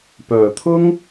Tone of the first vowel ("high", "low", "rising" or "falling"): low